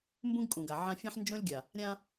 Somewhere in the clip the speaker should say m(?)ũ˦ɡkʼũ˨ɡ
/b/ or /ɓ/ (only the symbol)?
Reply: b